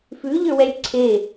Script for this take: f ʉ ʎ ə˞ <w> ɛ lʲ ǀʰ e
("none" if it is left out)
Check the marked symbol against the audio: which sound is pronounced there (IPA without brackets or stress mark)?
w